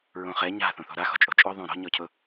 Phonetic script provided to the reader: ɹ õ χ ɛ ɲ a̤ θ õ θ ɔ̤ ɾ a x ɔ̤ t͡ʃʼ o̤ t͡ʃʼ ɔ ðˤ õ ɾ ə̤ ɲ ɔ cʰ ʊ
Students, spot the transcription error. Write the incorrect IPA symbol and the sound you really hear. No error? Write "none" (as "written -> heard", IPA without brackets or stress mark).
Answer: ə̤ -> ɔ̤